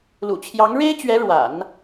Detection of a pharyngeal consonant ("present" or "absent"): absent